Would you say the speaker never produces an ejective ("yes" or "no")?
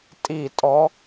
no